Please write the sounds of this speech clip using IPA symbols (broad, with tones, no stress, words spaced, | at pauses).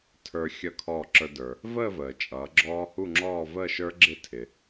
tʰə˞˧xʲʌ˧˩ kʰɔː˧˩ǁə˞˧də˞˩ | vəː˥˧vəː˩ t͡ʃʼʌː˩˧ɡ͡ǁɔː˦˥hu˥˧ŋ͡ǁɔː˥˧ vəː˥˧ʃə˞˦˥ ɡ͡ǁɪ˥˧tʰɪ˩